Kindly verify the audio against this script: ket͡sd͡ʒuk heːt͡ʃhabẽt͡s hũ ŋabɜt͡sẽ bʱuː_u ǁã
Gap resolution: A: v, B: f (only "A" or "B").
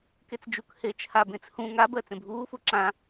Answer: B